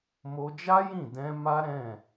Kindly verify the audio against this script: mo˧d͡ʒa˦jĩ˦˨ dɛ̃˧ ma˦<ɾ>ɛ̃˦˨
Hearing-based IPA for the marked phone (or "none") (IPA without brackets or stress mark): ɾ